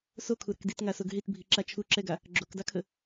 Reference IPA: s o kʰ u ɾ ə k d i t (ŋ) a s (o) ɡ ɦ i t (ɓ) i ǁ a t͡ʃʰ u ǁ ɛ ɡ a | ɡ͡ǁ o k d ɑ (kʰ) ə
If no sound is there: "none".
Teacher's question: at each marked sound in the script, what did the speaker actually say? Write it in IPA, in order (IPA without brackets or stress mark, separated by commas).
ŋ, o, bʱ, kʰ